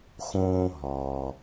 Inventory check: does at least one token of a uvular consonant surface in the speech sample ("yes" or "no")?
no